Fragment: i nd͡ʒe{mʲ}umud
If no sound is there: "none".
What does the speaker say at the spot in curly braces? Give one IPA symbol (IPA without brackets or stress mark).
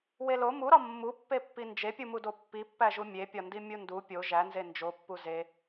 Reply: pʲ